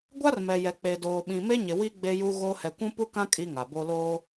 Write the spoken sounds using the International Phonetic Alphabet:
ɡʷa˦rmɛ˨jɛ˨ k͡pe˨doː˨ɓĩ˨ me˦ɲɪ˨wi˦ ɡ͡be˦ju˦ ɣo˦ hɛ˨kʷũ˦pu˦kã˦ kʼi˦ŋa˨bo˦ loː˦

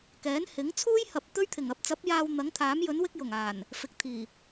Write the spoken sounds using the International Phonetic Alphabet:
kɛː˨˥nhɪ˨˥ŋ t͡sʰuː˥jhɐ˨p̚ t̪ɵ˥ɥt̪ʰɪ˨˩ŋ ɐ˨˥p̚t͡sɐ˨˥p̚jaː˧w n̪ɐ˨˥ŋt̪ʰaː˨˥mjɵ˨˥nwɪ˥k̚ jʊ˨˩ŋaː˨˩n | fɪ˨˥k̚t̪ʰiː˨˩

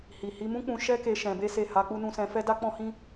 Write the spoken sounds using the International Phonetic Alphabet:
hi˨ hi˧mũ˦k͡pũ˧ ʃɛ˦ke˧ ʃɛ̃˧be˦se˦˨ ha˧k͡pu˧nũ˧ sɛ̃˧fɛ˦ da˦k͡pɔ̃˦hĩ˦

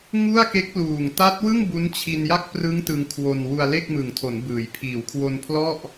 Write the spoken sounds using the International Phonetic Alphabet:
ŋu˥˩a̯ke˦˥k̚luː˨˩ŋ ta˦˥t̚wɯ˥˩ŋ bu˦˥nt͡ɕʰi˧nja˥˩k̚ prɯ˦˥ŋ tɯ˧ŋkʰwo˧n wu˧a̯le˥˩k̚mɯ˨˩ŋ tʰo˩˦nbɯː˩˦jpʰiː˨˩w kʰwo˧npʰlɔ˥˩ʔ

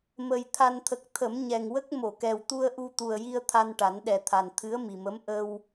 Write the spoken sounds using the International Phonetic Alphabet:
mə˨˩j t̪ʰa˨˩nt̪ʰə˨˩k̚ t̪ʰə˨˩˦mɲɛ˨˩ŋwə˦˥k̚ mo˨˩˨kɛ˨˩w t̪u˧ə̯ʔu˧t̪u˨˩ə̯ji˧ə̯ t̪ʰa˧nʈa˨˩˦nɗɛ˨˩t̪ʰa˨˩n t̪ʰɨ˧˥ə̯mi˨˩mə˧˥m ʔə˧w

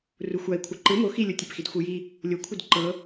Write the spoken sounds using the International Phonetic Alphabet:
ruxʷai̯kʷʰɤ ǃɯ mo xilʲotʲepxid xʷɯji | lʲokʷʰɯd ǃɤ

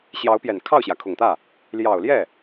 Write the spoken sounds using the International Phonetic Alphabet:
ɕjɑ˧˥ʊ̯pjɛ˨˩n kʰɑ˥˩ʊ̯ɕjä˩kʰʊ˨˩ŋt̪ä˥˩ | ljɑ˨˩ʊ̯ljɛ˥˩

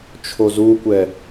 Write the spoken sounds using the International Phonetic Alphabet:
t͡ʃʰozukʷɛ

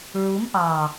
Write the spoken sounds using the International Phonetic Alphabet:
ɹu˨˦mʔɑ˨

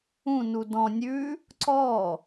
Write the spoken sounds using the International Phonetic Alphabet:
ũ nudɔ̃ nʲʉ | ǀɔ

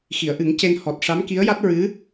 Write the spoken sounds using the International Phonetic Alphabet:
xi˨˩˨ə̯ʔɨ˨˩˦ŋ ce˧n hɔ˨˩t̚ ʂa˧˥mki˧˥ə̯ja˦˥t̚ ɹɨ˧˥

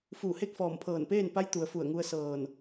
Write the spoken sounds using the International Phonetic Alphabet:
fuː˧˩he˥˨k̚fɔː˧˩mpʰɤː˧˩n peː˥˨npa˧˥jt̪u˩ə̯ fu˧˩ə̯ŋu˧ə̯sɤː˧˩n

